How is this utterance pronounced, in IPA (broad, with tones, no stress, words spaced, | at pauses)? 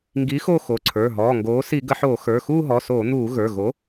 ŋɡi˨˥ xo˥˧xo˩˧˩ǀʰə˞˩˧˩ ɦɔː˩˧˩ŋɡoː˨˥ si˧˩˧ɡə˧˩˧ħoː˧˩˧ xə˞˩˧˩xuː˥˧ɦɔ˩˧˩soː˧˩˧ n̪uː˧˩˧ ɣə˞˩˧˩ɣo˨˥